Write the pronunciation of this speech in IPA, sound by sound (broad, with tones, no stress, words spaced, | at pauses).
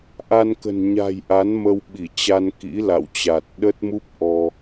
ʔa˧nkə̤˨˩n ɲa̤˨˩j ʔa˨˦n mə˧wɓi˧˩t͡ɕa˧n kḭ˧˥la̰˧˨wt͡ɕa˨˩t̚ ɗə˦˥t̚mu˦˥p̚ ʔɔ˧